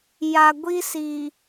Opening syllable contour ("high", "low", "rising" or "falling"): low